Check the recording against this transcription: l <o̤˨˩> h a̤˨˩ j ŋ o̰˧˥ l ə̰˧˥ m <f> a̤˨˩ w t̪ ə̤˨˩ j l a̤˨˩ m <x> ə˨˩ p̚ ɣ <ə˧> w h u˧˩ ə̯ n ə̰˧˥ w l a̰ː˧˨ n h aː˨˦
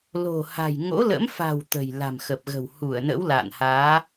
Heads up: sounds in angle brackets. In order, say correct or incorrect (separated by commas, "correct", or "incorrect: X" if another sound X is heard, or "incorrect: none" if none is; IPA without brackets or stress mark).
correct, correct, correct, incorrect: ə̤˨˩